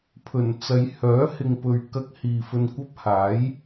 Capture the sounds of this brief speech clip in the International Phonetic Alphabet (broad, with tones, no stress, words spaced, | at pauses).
pʰɵ˨˩nt͡sɐ˨˧j hœː˨˥hɪ˨ŋpɵ˨ɥ kɐ˧k̚ hiː˨fɵ˧nkʷɐ˥p̚ haː˨˥j